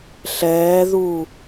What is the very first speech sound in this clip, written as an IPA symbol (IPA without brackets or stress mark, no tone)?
ɬ